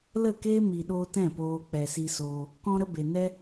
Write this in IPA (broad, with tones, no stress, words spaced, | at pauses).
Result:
lə˦˨keː˦mi˨ɗoː˧ tɛ̃˦˨poː˧ k͡pɛ˨si˧soː˧ | kɔ̃˧ɾə˧ be˨ nɛ˦